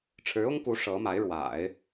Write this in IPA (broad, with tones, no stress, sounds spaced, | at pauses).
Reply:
ʈ͡ʂʰ ɻ̩˧˥ ʊ˥ ŋ k u˧˥ ʂ ɤ˧˥ m a˧˥ ɪ̯ ɻ w a̰˨˩˦ ɪ̯